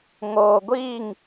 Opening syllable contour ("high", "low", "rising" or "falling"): low